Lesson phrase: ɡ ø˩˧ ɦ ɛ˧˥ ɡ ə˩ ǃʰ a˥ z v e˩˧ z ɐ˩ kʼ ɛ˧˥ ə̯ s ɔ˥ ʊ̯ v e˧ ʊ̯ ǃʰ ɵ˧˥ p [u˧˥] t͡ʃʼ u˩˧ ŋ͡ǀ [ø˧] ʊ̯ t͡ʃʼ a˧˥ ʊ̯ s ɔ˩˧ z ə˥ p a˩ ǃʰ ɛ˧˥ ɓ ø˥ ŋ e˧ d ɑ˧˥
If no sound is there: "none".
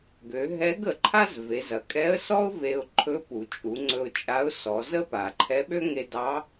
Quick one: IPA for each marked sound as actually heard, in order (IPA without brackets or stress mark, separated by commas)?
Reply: u˩, ɵ˧